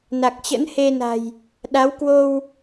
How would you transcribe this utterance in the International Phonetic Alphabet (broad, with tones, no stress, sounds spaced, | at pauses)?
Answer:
n a˨˩ k̚ t͡ɕ ə̰˧˥ n h e˧ n a̤˨˩ j | ɗ a˨˦ w k w o˧ w